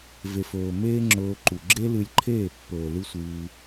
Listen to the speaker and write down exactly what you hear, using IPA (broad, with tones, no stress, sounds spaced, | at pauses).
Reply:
v e˨ f ɵː˨ m eː˦ ŋ͡ǁ ɵː˧ ǃ u˨ ɡ͡ǁ e˦ l ɨ˧ lʲ ǃʰ eː˦˨ pː ɵː˨ l ɨ˦ sʷ ɨː˧